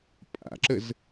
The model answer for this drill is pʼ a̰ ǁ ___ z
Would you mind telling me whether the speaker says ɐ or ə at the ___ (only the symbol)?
ə